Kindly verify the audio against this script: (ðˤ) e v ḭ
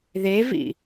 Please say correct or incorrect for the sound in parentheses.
incorrect